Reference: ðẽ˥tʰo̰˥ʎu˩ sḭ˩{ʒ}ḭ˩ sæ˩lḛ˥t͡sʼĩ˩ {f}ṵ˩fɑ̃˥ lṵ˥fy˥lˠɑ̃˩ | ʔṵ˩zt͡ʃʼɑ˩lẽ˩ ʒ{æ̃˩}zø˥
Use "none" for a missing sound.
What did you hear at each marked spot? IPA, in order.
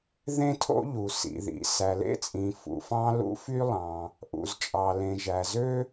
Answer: ð, f, æ˩

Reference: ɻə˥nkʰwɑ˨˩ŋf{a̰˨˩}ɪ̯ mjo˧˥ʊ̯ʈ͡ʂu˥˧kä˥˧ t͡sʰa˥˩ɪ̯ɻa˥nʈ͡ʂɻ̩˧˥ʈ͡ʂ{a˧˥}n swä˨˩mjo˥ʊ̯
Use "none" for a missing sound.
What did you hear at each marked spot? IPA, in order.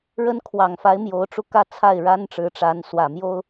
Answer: a˧˥, a˧˥

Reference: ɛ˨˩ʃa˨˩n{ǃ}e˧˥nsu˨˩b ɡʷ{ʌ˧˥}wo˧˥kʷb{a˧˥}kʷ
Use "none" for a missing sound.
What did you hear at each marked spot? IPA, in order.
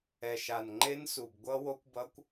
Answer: ŋ͡ǃ, ʌ˧˥, ʌ˧˥

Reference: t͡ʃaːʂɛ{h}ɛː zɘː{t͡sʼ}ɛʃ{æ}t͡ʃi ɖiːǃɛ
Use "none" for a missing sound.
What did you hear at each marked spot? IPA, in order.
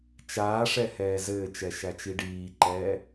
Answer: h, t͡ʃ, æ

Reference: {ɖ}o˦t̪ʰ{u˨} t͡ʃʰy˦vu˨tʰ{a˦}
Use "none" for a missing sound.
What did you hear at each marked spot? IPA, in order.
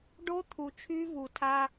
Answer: ɖ, u˨, a˦

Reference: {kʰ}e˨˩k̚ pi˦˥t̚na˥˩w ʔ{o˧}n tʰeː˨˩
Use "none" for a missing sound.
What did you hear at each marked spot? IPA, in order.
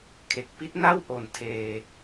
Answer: kʰ, o˩˦

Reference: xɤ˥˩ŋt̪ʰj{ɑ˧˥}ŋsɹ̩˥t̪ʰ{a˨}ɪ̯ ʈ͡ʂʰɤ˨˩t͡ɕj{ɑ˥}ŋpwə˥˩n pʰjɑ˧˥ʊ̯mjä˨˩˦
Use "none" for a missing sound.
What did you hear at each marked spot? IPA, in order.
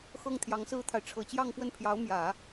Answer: ɑ˧˥, a˨, ɑ˥˧

